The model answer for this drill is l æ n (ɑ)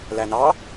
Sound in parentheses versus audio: correct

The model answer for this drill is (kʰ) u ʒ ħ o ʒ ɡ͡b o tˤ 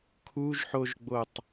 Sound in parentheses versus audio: correct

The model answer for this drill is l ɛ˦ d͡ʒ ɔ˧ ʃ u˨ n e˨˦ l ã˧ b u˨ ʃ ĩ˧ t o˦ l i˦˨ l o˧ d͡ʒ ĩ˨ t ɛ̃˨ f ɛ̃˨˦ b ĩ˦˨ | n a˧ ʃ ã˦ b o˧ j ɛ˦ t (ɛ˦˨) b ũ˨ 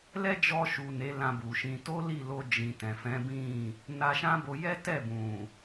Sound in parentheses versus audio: correct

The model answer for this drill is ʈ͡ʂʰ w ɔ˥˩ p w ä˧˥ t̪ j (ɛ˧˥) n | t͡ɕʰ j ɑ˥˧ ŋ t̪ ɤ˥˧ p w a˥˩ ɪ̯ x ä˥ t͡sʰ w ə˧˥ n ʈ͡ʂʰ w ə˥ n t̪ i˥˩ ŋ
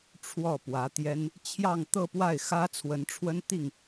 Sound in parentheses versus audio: incorrect: ɛ˥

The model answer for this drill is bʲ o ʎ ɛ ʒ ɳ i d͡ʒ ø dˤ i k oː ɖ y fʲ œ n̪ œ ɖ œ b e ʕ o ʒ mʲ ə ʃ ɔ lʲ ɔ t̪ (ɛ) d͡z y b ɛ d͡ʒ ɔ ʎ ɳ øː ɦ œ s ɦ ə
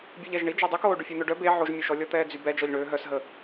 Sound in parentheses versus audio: incorrect: ɛː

